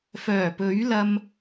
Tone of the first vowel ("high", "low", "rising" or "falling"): low